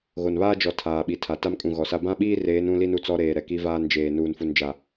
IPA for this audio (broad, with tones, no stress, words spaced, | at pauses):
ɣo˨nβaː˦d͡ʒɔ˨ tʰaː˨ɓi˨tʰa˨ ta˦mkʼũ˨ɣɔ˨sa˦ bã˦ɓiː˦reː˨˦n ũ˦li˦n u˨t͡sɔ˦ɾeː˨ ɾɛ˨ki˦ vaː˦nd͡ʒeː˨ nuː˨nfu˨nd͡ʒa˨